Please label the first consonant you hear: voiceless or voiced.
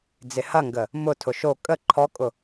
voiced